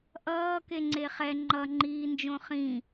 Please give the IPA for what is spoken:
ʔ ʌː k e ŋ͡ǀ e χ ɛ ŋ͡ǃ ʌ ŋ͡ǃ iː n d͡ʒ õ χ ĩ

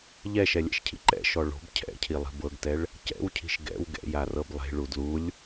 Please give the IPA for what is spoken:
ʎ ɛ ʃ ɛ lʲ ɛ̰ ʃ cʰ ḭ ǃ ɛ̰ ʃ ɔ ɭ o̤ b cʰ ɛ̰ cʰ i lˠ i̤ b ɤ ɡ t ɛ ɭ | c ɛ̰ w cʰ i̤ ʃ ɡ ɛ̰ w ɡ ɛ̰ j a r ɤ b lˠ e̤ ɭ u d l u lʲ

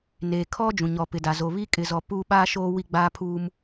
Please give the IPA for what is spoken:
n eː˨ kʰ ɔ˦ d͡ʒ ũ˨ ɲ ɔ˨ p ɪ˨ d a˨ z oː˨ β i˦ kʼ ɪ˨ z ɔ˨ p uː˦ ɓ aː˦ ʃ oː˦ w i˦ ɡ͡b aː˦ pʰ uː˦ m

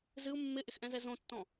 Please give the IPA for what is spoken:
z ɨ u̯ mː ɪ ʔ ɪ x ʔ ɛ̃ z ɛ z õ tː ɔ̃

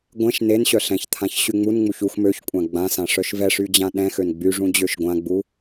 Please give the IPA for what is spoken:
ɡʷ ɛ̃ ʃ n e n ɕ œ ɬ ɛ̃ ç t̪ʰ ã ç ɕ y ŋ͡m u n ŋ͡m u ç u x m ø ç kʷʼ ã ɡ͡b ã s ã ʂ œ ʃ v ɛ ʂ y d͡ʑ ã ɗ ɛ̃ x ø n ɡ͡b y ʐ ũ d͡ʑ ø ʃ ɡʷ ã ɡ͡b u

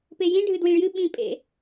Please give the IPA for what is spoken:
p e j ĩ ɖʱ ɨ d w ĩ ɭ j ɨ ɓ ĩ pʼ ḛ

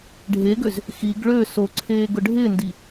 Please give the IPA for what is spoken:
ɖʱ e ɡ ø z | x i ɡ ɭ ø s o ǀʰ eː ɡ ʊ ɖʱ ɪ n d i

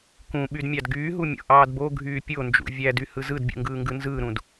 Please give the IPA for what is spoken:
k ũ ɓ y d mʲ ɑ d ɡ yː ɦ u mʲ o̰ ʔ ɑː d b o ɡʱ yː pʲ o n d͡ʒ ṵ vʲ æ d y h ɯ z ɯ d bʲ ṵ ŋ ɡ ɯː ŋ ɡ ɯ n z ɯː ɾ ũ d

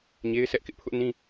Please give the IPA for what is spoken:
ɲ e˦ ɪ̯ sʰ ɛ˦ ʔ k ɪ˦ ʔ pʰ ʊ˦ ʔ n ĩ˦

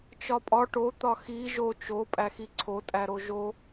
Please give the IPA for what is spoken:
t͡ʃ ɒ pʼ ɒ ʈ o t̪ ɒ x i ʒ o t͡ʃ o pʼ æ x i ǀʰ o tʼ æ ɾ o ʒ o

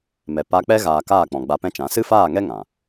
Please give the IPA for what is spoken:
m ɛ˨ p a˧ k͡p ɛ˦ ɣ aː˧ k aː˦˨ k͡p ɔ̃˨ ɡ͡b a˧ p ɛ̃˦ t͡ʃ ã˨˦ s ɨ˦ f aː˦˨ ŋ ɛ˦ ŋ ã˨

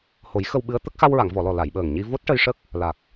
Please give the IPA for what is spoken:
h o˨˩˦ j x ə˧ w ɓ ɨ˧˥ ə̯ t̪ ə˦˥ k̚ x a˧ w ɹ a˨˩˨ ŋ v ɔ˨˩˨ l ɔ˨˩ l a˨˩˨ j ɓ əː˨˩ ŋ ɲ i˧ v o˦˥ t̚ ʈ ə˧ j ʂ ə˦˥ k̚ | l a˨˩ k̚

